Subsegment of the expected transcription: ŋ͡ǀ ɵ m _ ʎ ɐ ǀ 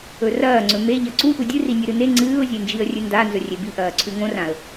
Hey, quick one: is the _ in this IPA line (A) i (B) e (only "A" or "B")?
B